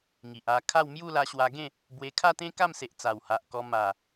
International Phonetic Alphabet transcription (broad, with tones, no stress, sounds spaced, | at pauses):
ŋ i˨ ʔ a˧ kʰ a˥˧ w m j u˥˧ l a˧ ɕ w a˧ ɡ ẽ˥˧ | b w e˧ kʰ a˥˧ t̪ ẽ˦ k a˥˧ m s e˨ ʔ t͡s a˨˩ w h a˨ ʔ k ɔ˧ m a˨˩